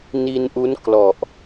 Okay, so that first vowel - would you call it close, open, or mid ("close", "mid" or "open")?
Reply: close